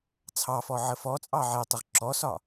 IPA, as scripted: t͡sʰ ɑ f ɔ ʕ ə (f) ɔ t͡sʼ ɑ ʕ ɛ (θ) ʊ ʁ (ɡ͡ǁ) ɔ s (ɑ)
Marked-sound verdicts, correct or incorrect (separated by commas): correct, incorrect, incorrect, incorrect